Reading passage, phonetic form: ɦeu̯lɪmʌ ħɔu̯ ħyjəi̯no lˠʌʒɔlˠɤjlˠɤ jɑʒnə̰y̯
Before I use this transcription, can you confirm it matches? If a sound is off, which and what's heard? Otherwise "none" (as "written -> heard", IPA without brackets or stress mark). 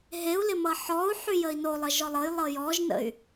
ɑ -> ɔ